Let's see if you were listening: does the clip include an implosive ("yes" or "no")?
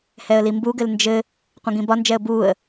no